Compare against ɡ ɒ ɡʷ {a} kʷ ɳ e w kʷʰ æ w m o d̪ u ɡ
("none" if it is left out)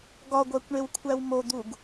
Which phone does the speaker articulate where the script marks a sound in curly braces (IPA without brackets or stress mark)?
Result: æ